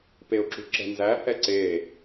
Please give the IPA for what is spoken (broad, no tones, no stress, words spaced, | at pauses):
peʊ̯ǁṳǁɛ̤nzæ hɛǀe